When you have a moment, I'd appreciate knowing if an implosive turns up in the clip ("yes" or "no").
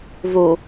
no